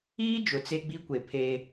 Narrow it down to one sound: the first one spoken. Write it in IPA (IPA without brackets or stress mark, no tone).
iː